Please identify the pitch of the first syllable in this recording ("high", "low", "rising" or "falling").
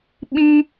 high